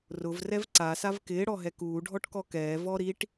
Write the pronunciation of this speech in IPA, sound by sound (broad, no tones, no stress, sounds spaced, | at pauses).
r ʊ v r ɛ v ǀ a s a v k ɪː ɽ ɔ ɦ ɛ k uː ɖʱ ɔ ʈ k ɔ k ɛː v ɔ ɾ i ʈ